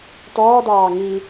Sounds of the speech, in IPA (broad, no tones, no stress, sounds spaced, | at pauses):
t ɔː d ɑː ŋ i